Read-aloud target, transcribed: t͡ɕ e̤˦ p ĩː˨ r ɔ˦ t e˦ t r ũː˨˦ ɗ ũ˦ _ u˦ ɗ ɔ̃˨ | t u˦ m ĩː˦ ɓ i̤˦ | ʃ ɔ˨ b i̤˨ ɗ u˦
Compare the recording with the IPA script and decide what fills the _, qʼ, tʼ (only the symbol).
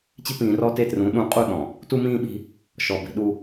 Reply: qʼ